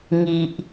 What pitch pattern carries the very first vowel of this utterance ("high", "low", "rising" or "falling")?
low